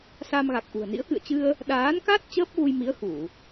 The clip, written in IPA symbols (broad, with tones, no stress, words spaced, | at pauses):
sa˧mɣa˨˩k̚ʔṳ˨˩ə̯nḭ˧˥ə̯ kɨ̰˧˨ə̯t͡ɕɨ˧ə̯ | ɗaː˨˦nka˦˥t̚ t͡ɕəː˦˥p̚ɣu˧jmi˨˦ə̯ xu˧˩˨